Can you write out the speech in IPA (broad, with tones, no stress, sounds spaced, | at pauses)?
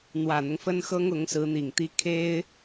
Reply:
n̪ w ä˨˩ n̪ ʊ˦ ŋ f ə˥ n x ɤ˥ ŋ ʊ˧˥ ŋ s ɹ̩˧˥ n̪ i˨˩ ŋ t̪ i˥ kʰ e˥ ɪ̯